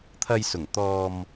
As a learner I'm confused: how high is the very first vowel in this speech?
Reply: low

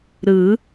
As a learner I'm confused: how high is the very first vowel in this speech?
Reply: high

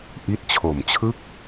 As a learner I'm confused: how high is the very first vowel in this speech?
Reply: high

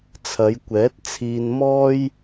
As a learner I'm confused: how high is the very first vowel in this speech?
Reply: low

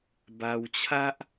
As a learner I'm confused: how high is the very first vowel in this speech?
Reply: low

